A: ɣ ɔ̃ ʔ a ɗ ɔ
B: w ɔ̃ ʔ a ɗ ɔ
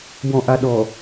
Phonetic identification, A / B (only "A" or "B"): B